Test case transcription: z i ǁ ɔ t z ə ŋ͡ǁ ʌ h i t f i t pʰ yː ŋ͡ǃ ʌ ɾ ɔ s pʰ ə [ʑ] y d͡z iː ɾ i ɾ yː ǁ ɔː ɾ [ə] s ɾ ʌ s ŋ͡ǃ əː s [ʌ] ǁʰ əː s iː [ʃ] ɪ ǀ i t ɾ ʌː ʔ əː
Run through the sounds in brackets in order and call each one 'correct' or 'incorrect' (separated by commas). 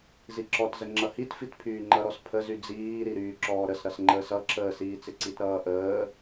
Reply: incorrect, correct, correct, incorrect